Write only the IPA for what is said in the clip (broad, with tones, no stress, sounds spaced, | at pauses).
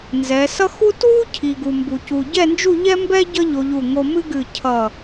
n z ɛ˩˧ s ʌ˥ x u˥ t w u˥ cʰ i˧ ɡ u˧ m b u˧ c u˧ ɟ ɛ˥˧ n d͡ʒ u˥˧ ʎ ɛ˥ m b ɛ˥ ɟ ʌ˥ ʎ o˧ ʎ u˧˩ ŋ o˧ m ɨ˥ ɡ ɨ˧˩ cʰ ʌ˧˩